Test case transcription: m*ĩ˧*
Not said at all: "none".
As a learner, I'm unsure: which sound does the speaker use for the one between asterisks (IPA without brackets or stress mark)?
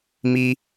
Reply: i˧